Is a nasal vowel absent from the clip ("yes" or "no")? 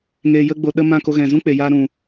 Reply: no